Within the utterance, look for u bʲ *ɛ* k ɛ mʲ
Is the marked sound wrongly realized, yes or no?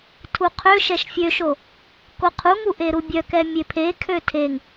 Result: yes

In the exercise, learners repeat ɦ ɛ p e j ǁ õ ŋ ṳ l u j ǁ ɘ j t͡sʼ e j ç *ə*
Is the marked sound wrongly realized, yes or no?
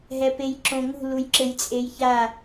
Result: yes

